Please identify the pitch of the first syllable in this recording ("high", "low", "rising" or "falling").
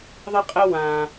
high